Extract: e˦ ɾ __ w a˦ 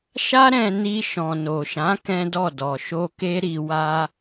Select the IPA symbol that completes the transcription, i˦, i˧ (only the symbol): i˧